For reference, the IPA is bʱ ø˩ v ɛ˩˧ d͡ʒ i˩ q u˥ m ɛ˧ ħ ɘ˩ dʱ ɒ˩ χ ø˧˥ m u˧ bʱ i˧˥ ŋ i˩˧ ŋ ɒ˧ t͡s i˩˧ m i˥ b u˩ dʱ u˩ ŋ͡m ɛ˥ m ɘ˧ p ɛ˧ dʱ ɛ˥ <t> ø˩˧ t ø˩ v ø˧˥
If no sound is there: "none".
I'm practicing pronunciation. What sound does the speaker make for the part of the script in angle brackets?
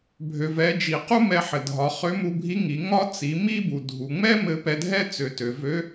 t͡s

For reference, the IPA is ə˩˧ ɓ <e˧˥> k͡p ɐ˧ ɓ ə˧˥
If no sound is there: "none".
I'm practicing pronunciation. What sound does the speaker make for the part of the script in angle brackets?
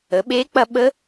e˧˥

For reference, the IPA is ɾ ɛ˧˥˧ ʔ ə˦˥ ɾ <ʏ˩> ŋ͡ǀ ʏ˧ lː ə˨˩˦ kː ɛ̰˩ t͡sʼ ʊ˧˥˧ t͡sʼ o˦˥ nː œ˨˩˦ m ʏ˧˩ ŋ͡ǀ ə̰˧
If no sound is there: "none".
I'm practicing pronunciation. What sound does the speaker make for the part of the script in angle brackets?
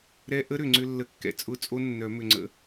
ʏ˩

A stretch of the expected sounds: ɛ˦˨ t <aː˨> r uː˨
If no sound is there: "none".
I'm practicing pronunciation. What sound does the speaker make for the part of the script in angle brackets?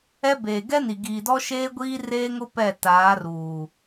aː˨˦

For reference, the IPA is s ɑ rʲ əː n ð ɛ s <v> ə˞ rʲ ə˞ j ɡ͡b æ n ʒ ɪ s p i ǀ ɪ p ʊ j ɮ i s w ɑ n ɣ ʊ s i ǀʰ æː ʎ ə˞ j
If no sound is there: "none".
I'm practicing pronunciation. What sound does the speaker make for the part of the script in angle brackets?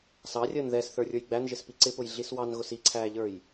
θ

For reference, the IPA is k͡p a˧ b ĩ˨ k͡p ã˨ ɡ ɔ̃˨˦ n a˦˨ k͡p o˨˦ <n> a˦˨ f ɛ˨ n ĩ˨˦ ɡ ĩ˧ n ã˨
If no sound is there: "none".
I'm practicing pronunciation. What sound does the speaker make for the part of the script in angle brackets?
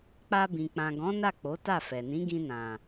t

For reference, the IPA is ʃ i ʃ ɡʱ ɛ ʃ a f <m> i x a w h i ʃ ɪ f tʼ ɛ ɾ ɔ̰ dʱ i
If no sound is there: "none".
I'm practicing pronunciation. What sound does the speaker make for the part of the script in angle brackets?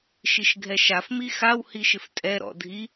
m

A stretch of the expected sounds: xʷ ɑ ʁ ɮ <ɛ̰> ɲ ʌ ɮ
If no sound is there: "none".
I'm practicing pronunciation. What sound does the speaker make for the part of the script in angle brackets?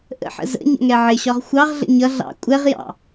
ə̰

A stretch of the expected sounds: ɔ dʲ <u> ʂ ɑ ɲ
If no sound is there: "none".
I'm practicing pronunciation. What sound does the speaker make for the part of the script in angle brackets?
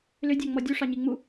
u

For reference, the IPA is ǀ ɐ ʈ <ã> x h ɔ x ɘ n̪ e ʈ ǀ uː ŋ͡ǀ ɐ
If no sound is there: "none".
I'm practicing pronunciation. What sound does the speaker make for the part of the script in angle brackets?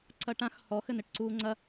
ã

